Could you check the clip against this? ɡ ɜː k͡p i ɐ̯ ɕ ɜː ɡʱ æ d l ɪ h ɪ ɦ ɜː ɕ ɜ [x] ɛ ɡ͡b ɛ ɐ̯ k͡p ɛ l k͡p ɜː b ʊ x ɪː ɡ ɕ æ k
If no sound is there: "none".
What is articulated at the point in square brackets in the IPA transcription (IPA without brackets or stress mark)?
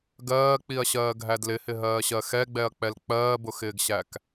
x